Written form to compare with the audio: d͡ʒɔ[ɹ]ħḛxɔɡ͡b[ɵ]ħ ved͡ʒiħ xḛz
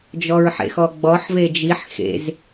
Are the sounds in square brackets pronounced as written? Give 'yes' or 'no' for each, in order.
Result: yes, no

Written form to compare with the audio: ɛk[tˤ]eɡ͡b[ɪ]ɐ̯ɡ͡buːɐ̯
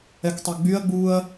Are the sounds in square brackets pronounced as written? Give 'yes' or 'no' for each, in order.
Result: yes, no

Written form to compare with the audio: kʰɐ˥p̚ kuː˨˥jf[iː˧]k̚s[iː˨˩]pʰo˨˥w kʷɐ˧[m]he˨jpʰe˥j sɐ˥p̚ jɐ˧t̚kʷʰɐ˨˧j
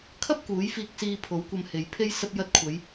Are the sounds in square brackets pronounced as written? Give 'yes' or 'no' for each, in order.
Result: yes, no, yes

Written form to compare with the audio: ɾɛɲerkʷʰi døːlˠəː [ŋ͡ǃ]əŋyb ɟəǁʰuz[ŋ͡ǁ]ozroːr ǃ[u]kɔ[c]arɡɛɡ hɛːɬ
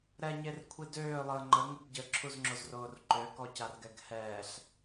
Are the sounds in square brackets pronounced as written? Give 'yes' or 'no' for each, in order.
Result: yes, yes, no, yes

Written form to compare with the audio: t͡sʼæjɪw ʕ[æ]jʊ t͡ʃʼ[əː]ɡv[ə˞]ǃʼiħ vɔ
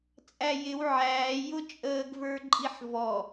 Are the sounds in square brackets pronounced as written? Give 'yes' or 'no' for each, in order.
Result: no, yes, yes

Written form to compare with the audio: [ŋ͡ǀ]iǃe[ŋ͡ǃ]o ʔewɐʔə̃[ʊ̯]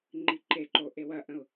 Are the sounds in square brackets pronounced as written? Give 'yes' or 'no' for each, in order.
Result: no, no, yes

